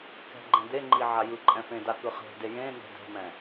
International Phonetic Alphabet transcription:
k ɛ̤ ɡ͡ǃ ɛ̃ d̪ e ŋ͡ǃ i ʕ a j ɯ ǃʼ ɛ̃ f ẽ d a k ɯ χ e̤ d e j ẽ n̪ ɛ̤ d ɛ̤ m ɛ̃

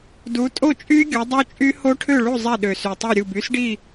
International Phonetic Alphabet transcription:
d u˨˦ tʼ o˥˨ t͡ʃʼ y˦˥ ɡʲ o˨˦ dˤ o˦˥ t͡ʃʼ y˦˥ h o˦˥ ʈʰ ø˥˨ ɭ u˥˨ zˤ ɛ˥˨ ɗ ø˨˩ s y˨˩ tˤ u˥˨ ɾʲ u˥˨ b y˦˥ s ɖ i˥˨

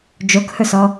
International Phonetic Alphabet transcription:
d͡ʒ o k h ɵ s ɔ

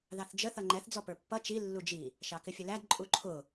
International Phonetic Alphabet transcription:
ð ɑ θ d͡ʒ ə θ ʌ ŋ͡ǃ ɛ θ d͡z ɔ p ə˞ pː ʌ t͡ʃ i lː u d͡ʒ i | ʃ ɑ k ɪ fʲ ə l æ d ǃʼ u ǃʰ ʊ

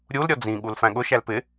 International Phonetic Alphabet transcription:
ɾʲ u l ɾʲ ɔ d͡z ĩ ɠ u l f æ̃ ɠ ʊ ʃ æ l p ɪ

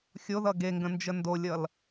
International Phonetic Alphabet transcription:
xʲ o ð ʌ ɡ e ŋ ɡ ə̃ n d͡ʒ ə n d o lʲ ʌ l

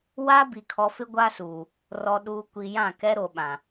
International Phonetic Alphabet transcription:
w a˦ b i˨ kʰ ɔ˨ f ɪ˦ ɡʷ a˦ s uː˨ | r ɔ˨ ɗ uː˨ kʷ i˨ j ã˦˨ k ɛ˦ ɾ o˨ ɓ ã˨

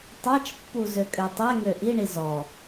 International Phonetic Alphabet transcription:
tˤ a t͡ʃ pː u z ø kʼ ø tˤ ɛ ŋ ø ʔ i ɳ i z ɔ

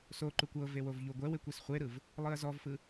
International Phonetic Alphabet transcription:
s o ǃ u kʷ ɤ v e w o v ʎ u ɡʷ ɛ w e kʷ e s χʷ e ɾ ɯ v | lˠ ɯ ɐ̯ z ɔ v f ɯ

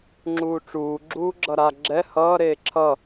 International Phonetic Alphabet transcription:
ŋ͡ǁ uː ʈ͡ʂ uː ɡ͡ǁ uː ɡ͡ǁ ʌ ɾ a ɡ͡ǁ ɛ h ʌː ɾ eː ǁʰ ʌ

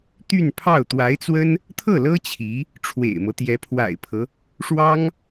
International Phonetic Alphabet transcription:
t̪ y˥˧ n pʰ ɑ˥˩ ʊ̯ t̪ w a˧˥ ɪ̯ t͡s w ə˥ n | t̪ʰ ɤ˥˩ l ɤ˥ t͡ɕʰ i˧˥ | ʈ͡ʂʰ w ḛ˨˩ ɪ̯ m ɤ˦ t̪ j ɛ˧˥ pʰ w a̰˨˩ ɪ̯ pʰ ɤ˦ | ʂ w ɑ˥ ŋ

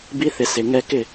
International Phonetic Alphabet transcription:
b i˧ θ ɪ˨ s ɪ˨ ŋ ɛ˧ k ɪ˦˨

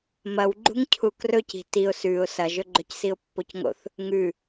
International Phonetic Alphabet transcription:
m ɐ w ɡ͡ǃ ṳ ŋ cʰ u k r ɵ c i̤ t i ʊ̯ s ʉ ʊ̯ s ɐ ʒ ɵ ɡ͡ǃ ɵ c s i ʊ̯ pː o c ŋ o̰ θ | ŋ ʉ

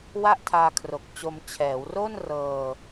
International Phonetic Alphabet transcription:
w a˥˩ ʔ tʰ aː˧ kʰ r o˨˩ k̚ t͡ɕ o˧ m t͡ɕʰ ɛː˩˦ w r o˥˩ n r ɤː˧

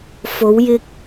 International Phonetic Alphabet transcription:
f o˨˧ w j ɪ˧ k̚

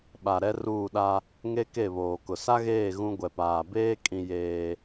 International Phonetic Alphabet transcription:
ɓ a˨ ɾ ɛ˦ r uː˦˨ ɗ a˦ | ŋ e˦ k e˦˨ β oː˨ k ʊ˨ s a˦ ɣ eː˦˨ ɣ ũ˦ ɡʷ ɛ˨ p aː˨ b eː˦ kʼ ĩ˦ j eː˦

